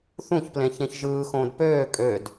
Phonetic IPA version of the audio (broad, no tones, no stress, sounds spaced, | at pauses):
θ ũ ç p l ẽ ç ẽ ç ʒ ɯː x õː d p øː kʼ ø d